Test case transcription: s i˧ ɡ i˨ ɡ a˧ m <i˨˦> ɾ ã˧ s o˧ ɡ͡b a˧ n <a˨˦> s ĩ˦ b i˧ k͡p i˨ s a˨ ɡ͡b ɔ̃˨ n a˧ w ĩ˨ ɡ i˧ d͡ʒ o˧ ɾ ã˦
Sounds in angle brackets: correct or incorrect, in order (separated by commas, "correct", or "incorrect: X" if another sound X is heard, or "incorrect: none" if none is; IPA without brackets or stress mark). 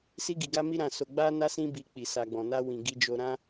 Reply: incorrect: i˧, incorrect: a˧